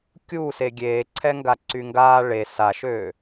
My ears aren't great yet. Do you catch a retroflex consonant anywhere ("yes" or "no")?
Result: yes